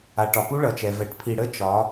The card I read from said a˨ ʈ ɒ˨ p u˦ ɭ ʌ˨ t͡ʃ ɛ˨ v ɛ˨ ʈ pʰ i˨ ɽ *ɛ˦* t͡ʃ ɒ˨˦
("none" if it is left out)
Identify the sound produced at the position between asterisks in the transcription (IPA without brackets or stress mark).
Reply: ə˦